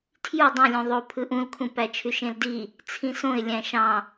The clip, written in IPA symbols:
tʰ j u dˤ ũ lʲ ũ ðˤ o pʰ ɯ ʔ ũ l kʰ ũ p æ t͡ʃʰ y ʃ ẽ l d i | t͡sʰ ĩ s õ ɪ̯ lʲ æ̃ ʃ ɑ̃

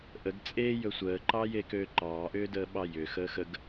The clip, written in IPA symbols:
ʔ ə ɡ t͡sʼ e j ɵ sʷ əː ǃ ɑ j e k øː ǃ ɑː ʔ ʏː d əː ɓ ɑ j ʏ x əː x ə ɡ

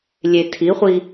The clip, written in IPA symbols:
lʲ e tʰ i χʷ i

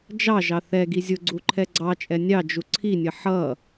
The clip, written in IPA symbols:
d͡ʒ ɑ ʒ ɑ θ ɛ ɡ i zʲ ʊ ɡ͡ǀ u ǃʰ ɛ ɡ͡ǀ ɑ t͡ʃʼ ɛ nʲ ɑ d͡ʒ u ǀʰ i nʲ ə ħ ʌ

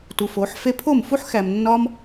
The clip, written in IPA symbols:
t u˨ f o˨˦ ħ f e˦ pʰ o˦˨ m f u˦ ħ x æ˨ m nː ɒ˦ m

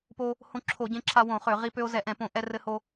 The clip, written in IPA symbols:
p o˧ | h õ˧ ǁʰ o˧˩˧ ɟ ẽ˧ ǁʰ a˧ w õ˧˩˧ χ ø˧˩˧ ʁ i˧ p ø˧ o̯ z ɛ˧˩˧ ʔ ɛ̃˧˩˧ p õ˧˩˧ ʔ ɛ˧ r ɘ˧ h o˧

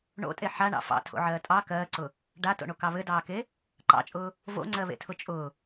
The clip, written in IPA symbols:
ɳ o̰ tʼ e ħ a ɳ ɑ̰ f ɑ̰ tʰ o̰ ʕ ɜː tʼ ɑ k ɜː ǀ ʊ | ɖ a t o̰ ɳ o k ɑ β ɘ d ɑː k e | ǃ ɑ̰ t͡ʃʼ ʊː | v o̰ ŋ͡ǀ ɜ β ḛ tʰ ʊ t͡ʃʼ ʊ

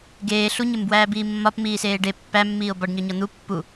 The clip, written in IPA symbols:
ɡ eː ɬ u ɲ e m b w æː b iː mː ɒ p m iː s eː ɖ e pː æ mː iː o̯ b ɒ ɖ ɲ ɒ ɲ ɒ n̪ u pː u

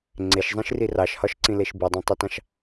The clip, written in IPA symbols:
ŋ͡ǀ e ʃ zˤ ĩ ʃ r i r ɑ ʃ h ɒ ʃ ǀ ĩ l e ʃ b i dˤ ɑ̃ tˤ ʉ t ɑ̃ ʃ

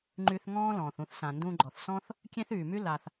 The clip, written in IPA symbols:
ŋ͡ǃ y˧ θ ŋ ɔ̃ː˥ l ɔ̃ː˩ θ ũ˧ θ s ã˩ n d ũ˧ ɡ͡ǃ ɔ˩ θ s ɔ̃˥ θ | kʲ ẽ˥ θ yː˩ m y˥ l a˩ θ

